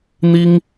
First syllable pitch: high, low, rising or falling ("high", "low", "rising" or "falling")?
high